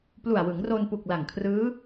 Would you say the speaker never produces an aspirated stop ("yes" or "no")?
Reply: no